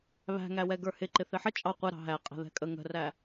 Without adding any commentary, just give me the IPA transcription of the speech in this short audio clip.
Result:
βæ̤ŋæwɛ ɡə˞hɪ ǃɪθɪħə t͡ʃʼɑ qʷɛ ɾɑ̤ɦæ qʼæ̤ðɛ̤kʼə ŋə̤ræ

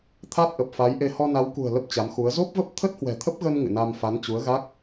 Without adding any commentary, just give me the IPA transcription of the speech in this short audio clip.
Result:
t̪ʰa˦˥t̚ʔə˨˩p̚fa˨˦jʔe˧ hɔ˧na˨˦wkṳ˨˩ə̯ lə˦˥p̚t͡ɕa˨˦mxu˨˦ə̯ zo˦˥p̚və˦˥p̚ t̪ʰə˦˥t̚hwɛ̤˨˩t̪ʰə˦˥p̚ɣə˧n ŋɨ̰˧˨na˧m fa˨˦nt͡ɕu˨˦ə̯ɣa˦˥k̚

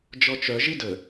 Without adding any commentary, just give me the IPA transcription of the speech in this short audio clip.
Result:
d͡ʒɔt͡ʃœ ʒidə

